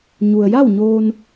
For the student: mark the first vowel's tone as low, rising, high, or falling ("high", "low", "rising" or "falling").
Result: low